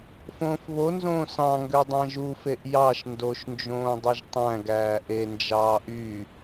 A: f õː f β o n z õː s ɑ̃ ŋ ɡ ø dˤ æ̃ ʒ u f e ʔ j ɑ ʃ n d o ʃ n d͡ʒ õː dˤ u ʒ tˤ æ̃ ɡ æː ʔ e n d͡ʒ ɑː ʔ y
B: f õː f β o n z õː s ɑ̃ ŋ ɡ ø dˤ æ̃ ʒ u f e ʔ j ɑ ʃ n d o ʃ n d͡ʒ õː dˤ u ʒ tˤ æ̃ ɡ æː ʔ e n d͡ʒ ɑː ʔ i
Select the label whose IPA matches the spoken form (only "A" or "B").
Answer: A